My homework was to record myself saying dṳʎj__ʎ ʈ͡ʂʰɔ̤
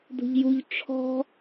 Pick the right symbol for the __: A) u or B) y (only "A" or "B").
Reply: A